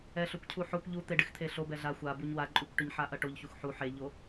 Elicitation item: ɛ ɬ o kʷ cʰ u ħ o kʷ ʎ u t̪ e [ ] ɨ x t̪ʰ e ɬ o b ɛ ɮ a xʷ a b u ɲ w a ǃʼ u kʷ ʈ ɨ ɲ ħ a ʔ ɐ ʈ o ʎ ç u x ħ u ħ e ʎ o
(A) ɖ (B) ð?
A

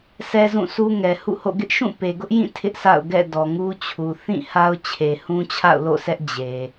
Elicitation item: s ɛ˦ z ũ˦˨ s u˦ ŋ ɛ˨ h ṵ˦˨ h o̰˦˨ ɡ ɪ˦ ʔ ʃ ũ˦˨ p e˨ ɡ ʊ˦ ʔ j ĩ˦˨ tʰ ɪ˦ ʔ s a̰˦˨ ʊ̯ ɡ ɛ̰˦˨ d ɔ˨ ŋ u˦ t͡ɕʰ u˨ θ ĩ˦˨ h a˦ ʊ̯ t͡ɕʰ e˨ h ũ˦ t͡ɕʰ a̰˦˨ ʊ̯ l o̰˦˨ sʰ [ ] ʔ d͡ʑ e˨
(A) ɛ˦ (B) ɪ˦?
A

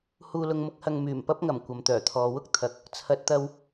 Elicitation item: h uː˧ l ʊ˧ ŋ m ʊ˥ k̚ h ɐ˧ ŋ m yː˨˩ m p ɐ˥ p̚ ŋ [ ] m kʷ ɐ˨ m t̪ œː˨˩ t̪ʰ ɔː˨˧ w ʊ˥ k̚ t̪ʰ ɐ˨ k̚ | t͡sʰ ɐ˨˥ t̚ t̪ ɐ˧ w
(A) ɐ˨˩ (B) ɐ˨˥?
A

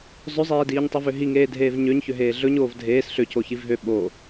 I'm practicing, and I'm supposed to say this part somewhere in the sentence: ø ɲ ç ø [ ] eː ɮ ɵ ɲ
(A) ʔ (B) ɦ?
B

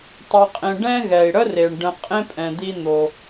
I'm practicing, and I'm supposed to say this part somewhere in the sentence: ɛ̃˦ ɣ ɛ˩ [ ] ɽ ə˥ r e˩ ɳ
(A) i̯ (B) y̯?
A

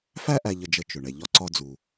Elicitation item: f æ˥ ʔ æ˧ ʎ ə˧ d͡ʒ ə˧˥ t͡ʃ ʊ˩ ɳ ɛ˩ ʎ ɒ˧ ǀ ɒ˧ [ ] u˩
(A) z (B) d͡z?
B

